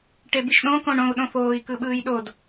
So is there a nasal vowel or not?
yes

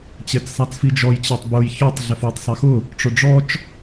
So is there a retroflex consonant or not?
yes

